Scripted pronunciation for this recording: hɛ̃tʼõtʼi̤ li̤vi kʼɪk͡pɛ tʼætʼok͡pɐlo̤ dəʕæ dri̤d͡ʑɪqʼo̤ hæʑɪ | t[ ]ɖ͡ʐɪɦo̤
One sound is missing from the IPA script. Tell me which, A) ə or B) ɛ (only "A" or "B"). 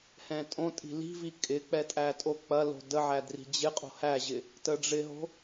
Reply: A